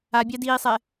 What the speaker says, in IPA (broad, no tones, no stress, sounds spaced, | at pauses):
a bʲ a d iː sˤ ɛ